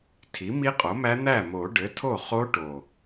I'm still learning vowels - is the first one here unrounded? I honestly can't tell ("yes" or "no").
yes